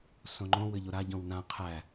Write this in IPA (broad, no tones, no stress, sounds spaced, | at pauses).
s õ ŋ͡ǃ õ w ɘ ʎ o ɾ a ɟ õ w n ã qʰ æ